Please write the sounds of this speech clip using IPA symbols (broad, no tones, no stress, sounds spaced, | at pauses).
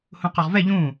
h ũ q ɔ ʁ v ɛ ʎ ũ